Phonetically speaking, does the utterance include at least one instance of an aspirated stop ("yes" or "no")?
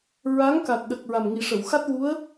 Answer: no